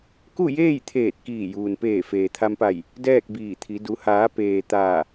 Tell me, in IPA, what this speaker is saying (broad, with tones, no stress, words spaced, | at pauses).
ku˥˨jeː˥˨jt̪ʰeː˧˩t̚ kiː˧˩juː˩npeː˧˩ feː˩t̪ʰa˧mpa˧˩j | dɛː˥˨k̚biː˧˩t̪ʰi˩˧ du˩˧haː˩˧ peː˩ t̪aː˧˩